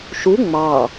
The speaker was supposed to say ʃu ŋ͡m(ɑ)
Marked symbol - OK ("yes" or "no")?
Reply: yes